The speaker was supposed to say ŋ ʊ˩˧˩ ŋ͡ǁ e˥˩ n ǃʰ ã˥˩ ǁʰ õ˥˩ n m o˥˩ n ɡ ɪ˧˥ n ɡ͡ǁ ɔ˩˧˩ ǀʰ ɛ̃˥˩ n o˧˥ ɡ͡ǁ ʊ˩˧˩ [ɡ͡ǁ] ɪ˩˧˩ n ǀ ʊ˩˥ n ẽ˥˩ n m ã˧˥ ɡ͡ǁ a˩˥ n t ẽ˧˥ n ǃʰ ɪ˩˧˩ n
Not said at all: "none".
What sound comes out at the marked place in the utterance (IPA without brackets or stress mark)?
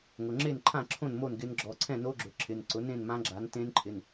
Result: ǁʰ